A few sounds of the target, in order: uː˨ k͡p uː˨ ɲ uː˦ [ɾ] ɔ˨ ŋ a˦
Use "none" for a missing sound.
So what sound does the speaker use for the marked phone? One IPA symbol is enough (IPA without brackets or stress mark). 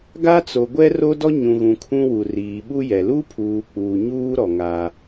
ɾ